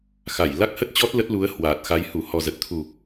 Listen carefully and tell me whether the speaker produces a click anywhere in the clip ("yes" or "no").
no